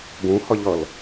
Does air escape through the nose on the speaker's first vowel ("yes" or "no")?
yes